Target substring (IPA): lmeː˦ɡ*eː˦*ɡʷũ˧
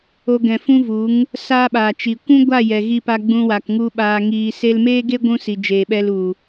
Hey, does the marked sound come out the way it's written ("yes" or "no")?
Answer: no